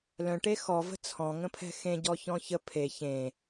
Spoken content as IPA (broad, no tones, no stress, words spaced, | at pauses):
lœ̃ʈe xɔvə̤ t͡sʰɔ̃ŋə̃pʰɛ̤ xẽɟɔçɔ̃ çə pʰe çẽ